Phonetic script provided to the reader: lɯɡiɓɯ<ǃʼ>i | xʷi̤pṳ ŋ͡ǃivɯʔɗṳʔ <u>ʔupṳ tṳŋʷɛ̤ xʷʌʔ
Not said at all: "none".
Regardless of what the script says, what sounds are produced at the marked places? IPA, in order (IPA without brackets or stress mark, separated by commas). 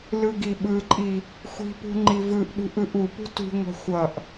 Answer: ǃʼ, ɯ